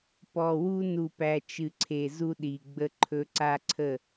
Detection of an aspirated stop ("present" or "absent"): present